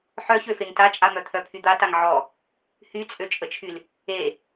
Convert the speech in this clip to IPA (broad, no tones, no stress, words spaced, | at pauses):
ħœçøfeŋ tat͡ʃʼamœt̪ʰœ pʰyd̪ataŋ ʕɔ | hyt͡sʼøt͡ʃʼət͡ʃʰyl | e